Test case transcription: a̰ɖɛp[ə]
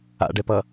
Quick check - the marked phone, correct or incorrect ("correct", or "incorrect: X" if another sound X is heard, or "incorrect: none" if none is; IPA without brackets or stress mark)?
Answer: incorrect: ʌ